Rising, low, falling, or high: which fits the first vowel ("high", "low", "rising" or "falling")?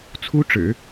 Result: high